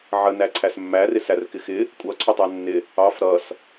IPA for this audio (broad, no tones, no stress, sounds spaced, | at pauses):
ʕ ə n æ ǀʰ æ s mː æ r ɪ s æ r k ɪ x ɪ | kʷʼ ʌ ǀʰ ʊ tˤ æ nː ɪ | ɑ f ɾ ʌ s